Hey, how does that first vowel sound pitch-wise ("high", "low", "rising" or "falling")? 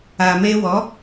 low